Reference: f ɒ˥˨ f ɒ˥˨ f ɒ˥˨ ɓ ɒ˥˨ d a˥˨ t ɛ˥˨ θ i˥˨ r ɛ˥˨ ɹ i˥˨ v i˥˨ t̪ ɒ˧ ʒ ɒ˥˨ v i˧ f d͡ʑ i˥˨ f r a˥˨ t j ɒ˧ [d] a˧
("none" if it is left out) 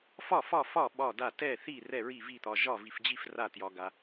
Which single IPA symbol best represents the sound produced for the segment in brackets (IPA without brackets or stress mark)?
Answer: ɡ